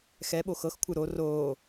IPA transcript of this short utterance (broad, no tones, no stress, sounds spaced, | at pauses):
x ɛ ɓ o x ɤ x kʷʰ ɯ ɾ o r oː